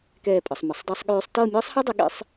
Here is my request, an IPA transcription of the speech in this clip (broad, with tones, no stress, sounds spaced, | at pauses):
k ɛː˥˧ pʼ ə˨˦ sˤ m ə˨˦ sˤ dˤ ɤ˥ sˤ ɠ øː˥ sˤ t ɤː˥˧ mʲ ɤː˥ sˤ h ɑ˥ dˤ ə˨˦ ɠ ḛ˥ sˤ